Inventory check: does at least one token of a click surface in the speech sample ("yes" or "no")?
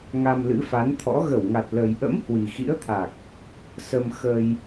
no